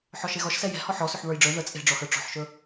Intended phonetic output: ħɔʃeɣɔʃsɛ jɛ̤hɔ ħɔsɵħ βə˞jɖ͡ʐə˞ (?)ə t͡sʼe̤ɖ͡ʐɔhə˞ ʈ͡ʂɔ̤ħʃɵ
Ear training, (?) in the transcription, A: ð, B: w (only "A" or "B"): A